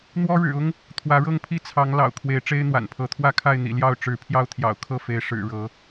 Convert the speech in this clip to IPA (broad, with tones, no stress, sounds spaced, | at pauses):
n̪ w ɔ˦ ɻ ɻ̩˨˩ ʊ˦ ŋ | t̪ʰ w ä˨˦ ɻ ɤ˥˨ ŋ pʰ i˥˨ t͡sʰ ɑ˨˦ ŋ l ɑ̰˨˩ ʊ̯ kʰ w e˨˦ ɪ̯ ʈ͡ʂ e˦ ɪ̯ n̪ w a̰˨˩ n pʰ ɤ˨˦ t̪ʰ w ä˥˨ kʰ a˥˨ ɪ̯ n̪ ḭ˨˩ l j ɑ˥˨ ʊ̯ ʈ͡ʂ ɻ̩˨˦ pʰ j ɑ˦ ʊ̯ t̪ʰ j ɑ̰˨˩ ʊ̯ kʰ ɤ˥˨ f e˨˦ ɪ̯ ʂ ɻ̩˨˩ ɻ ɤ˨˦